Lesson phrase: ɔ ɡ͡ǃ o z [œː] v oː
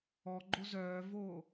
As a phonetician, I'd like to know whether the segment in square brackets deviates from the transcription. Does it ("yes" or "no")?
no